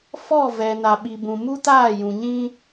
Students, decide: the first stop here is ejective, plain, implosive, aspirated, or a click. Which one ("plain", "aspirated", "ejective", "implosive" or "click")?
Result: implosive